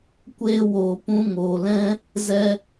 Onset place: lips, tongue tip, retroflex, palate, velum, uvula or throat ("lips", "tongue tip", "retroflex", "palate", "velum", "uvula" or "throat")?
velum